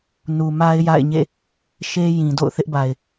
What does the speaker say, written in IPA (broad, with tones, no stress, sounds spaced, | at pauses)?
n u˨ m a˦ ɪ̯ j a̰˦˨ ɪ̯ ɲ ḛ˦˨ | ʃ e˦ j ĩ˨ d o̰˦˨ ʊ̯ θ ɪ˦ ʔ b a˨ ɪ̯